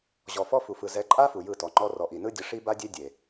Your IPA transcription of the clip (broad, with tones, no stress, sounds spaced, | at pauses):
ʑ ɔ˨ f ɔ˦ f u˨ f ɯ˨ z ɛ˨˦ ǃʼ a˦ f u˨ j ɯ˦˨ t ɔ˨ ŋ͡ǃ ɔ˦ r ɔ˨ ʔ i˨ n ɯ˦ dʲ ɤ˦ ʂ i˦ b a˦ dʲ e˦ dʲ e˨